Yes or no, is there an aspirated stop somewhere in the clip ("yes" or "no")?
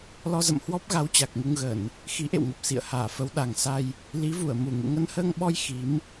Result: no